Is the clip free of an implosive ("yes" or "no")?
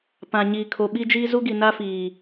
no